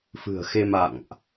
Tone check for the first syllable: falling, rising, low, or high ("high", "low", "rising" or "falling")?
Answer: low